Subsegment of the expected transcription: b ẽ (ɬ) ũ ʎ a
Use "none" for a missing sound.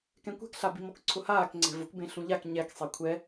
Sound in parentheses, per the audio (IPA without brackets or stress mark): ɬ